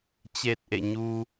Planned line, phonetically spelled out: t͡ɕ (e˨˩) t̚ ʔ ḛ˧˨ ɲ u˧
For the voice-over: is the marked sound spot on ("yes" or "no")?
yes